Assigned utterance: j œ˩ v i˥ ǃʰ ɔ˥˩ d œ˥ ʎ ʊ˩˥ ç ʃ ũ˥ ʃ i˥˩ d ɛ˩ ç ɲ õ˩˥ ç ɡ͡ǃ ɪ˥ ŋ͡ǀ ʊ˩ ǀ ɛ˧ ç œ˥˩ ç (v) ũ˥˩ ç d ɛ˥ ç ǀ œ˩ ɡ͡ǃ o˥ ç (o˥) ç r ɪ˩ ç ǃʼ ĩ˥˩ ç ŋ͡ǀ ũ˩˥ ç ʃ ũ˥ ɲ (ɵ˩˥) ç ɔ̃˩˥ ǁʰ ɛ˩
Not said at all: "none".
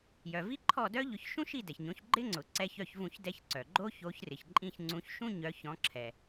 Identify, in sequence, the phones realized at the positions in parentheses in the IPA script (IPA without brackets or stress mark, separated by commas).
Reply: v, o˩˥, œ˩˥